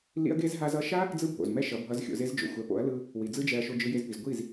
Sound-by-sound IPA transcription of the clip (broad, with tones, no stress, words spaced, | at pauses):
lḭ˦ɐ̯ɡe˦z ɦa˧zʌ˧ʃa˦ | d͡zɯ˦bʱo̰˨z mɛ˦ʃʌ˨˦bʱʌ˧z xʲo̰˧ze˦zd͡ʒo̰˨ xʷɛ˨˦po̰˨˦ɐ̯lɯ˧ | wi˨d͡zɯ˦d͡ʒɛ˧ɐ̯ ʃo˧d͡ʒɯ˧je˧zpi˨z ɡʷi˦˨z